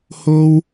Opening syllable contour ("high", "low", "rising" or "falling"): high